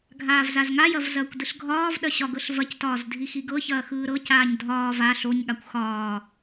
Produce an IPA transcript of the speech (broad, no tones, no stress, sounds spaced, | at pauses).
ɡʱ aː v z a z ŋ a j ɐ v z ɐː kʷ d ɯ ɬ ɡʱ ɒː v ɗ ɐ ɕ ɒ ɡ ɤ ɬ v ɐ c t ɒː z dʱ i x i ɡ ɤ ç ɐː x ɯː ɾ ɤ c aː ɲ dʱ ɒː v a ɬ o ɲ ɠ a kʷ x ɒː